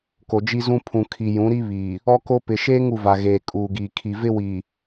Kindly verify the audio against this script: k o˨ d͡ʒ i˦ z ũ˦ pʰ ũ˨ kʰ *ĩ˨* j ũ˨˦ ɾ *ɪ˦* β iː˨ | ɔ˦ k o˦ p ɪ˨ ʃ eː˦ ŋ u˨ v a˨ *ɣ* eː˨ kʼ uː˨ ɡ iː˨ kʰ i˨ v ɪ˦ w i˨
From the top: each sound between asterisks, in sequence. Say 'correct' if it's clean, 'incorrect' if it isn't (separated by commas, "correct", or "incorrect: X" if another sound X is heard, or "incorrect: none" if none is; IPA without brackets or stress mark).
incorrect: i˨, incorrect: i˦, correct